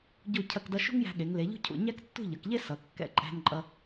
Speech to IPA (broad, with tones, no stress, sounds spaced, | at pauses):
ɟ u˥˧ cʰ ɐ˥˧ k d ʌ˥ ʃ ṳ˥ ŋ j æ̤˧ ɠ e˩˧ ŋ l e˩˧ ʎ ṳ˥ cʰ ṵ˧˩ ɲ æ˥ k tː ṳ˥˧ ʎ ʌ˩˧ k ʎ e˥ s ʌ˩˧ kː ɛ̰˧ ǃʼ æ̤˧ n ǃʼ ʌ˧